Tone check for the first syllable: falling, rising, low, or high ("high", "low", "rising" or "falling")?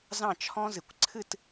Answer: falling